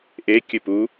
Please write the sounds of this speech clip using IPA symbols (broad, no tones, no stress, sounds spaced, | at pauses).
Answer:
ʔ e kʲ ɨ p u